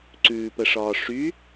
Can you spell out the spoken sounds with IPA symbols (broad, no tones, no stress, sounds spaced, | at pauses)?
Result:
ǀ ʉː p ə ʂ ɒː ʂ y